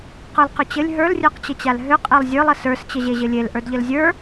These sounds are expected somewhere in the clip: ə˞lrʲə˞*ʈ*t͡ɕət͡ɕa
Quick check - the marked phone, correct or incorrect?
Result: incorrect